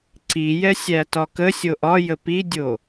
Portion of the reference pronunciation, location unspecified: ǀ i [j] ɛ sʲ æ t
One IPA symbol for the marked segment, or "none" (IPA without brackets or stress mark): j